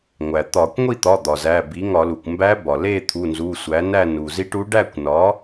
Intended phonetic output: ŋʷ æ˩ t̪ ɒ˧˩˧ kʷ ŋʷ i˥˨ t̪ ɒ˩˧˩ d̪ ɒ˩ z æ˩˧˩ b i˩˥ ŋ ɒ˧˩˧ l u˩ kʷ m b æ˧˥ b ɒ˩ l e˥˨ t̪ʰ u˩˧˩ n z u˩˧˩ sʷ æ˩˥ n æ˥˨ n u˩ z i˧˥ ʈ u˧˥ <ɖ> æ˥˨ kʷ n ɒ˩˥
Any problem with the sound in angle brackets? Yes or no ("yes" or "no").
no